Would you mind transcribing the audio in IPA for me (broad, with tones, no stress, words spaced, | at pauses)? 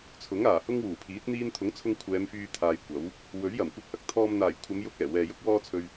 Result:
t͡sʰʊ˨˥ŋaː˨˩ hʊ˥ŋwuː˨˩pʰiː˨˥t̚ n̪iː˧nt̪ʰʊ˨˥ŋt͡sʰʊ˧ŋ kʷʰɛː˨˧mfyː˧t̪ʰaː˨j kʷɐ˨˥w | wɵ˨˥ɥjɐ˨˩m kʷɐ˧k̚hɐ˥k̚t̪ʰɔː˧m n̪aː˨˩jkʷʰɐ˨˧mjʊ˧k̚ ɛː˨˩wɛː˨jʊ˥k̚ wɔː˥t͡sʰɵ˧ɥ